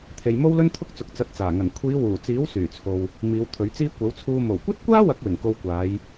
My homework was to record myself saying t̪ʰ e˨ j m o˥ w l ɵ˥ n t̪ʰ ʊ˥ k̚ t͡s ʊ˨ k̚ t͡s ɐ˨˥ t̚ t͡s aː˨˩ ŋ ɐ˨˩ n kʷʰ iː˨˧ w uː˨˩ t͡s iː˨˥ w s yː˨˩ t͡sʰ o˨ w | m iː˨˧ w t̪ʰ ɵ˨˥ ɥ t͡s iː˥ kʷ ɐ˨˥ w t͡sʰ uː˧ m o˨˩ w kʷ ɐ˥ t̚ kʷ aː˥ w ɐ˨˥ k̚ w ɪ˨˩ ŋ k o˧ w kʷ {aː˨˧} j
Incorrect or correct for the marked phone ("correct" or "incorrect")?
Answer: correct